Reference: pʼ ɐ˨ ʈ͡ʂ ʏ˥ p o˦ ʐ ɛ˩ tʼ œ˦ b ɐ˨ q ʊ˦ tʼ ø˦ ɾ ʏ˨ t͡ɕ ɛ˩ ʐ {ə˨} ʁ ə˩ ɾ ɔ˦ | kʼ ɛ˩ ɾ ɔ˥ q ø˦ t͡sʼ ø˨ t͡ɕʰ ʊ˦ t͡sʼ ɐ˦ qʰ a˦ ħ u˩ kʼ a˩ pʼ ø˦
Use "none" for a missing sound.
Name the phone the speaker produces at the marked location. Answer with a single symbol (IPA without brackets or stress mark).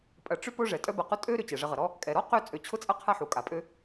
ə˨